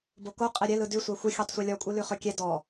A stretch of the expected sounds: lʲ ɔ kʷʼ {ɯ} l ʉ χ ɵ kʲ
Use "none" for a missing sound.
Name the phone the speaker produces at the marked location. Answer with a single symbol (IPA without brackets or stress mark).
ɯ